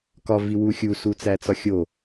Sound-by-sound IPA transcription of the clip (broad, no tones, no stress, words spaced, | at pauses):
kɒ viwuxʲu sut͡sæt͡sɒxʲo